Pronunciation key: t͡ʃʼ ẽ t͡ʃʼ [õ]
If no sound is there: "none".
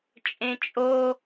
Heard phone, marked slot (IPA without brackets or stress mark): o